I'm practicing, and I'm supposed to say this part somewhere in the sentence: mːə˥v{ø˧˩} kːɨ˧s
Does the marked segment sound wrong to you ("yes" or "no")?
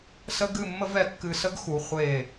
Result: yes